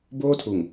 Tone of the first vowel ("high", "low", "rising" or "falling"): high